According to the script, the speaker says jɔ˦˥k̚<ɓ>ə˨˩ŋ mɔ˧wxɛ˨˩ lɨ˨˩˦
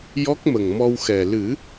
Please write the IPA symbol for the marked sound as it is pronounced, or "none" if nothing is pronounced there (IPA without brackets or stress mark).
m